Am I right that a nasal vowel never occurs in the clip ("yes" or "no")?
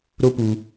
yes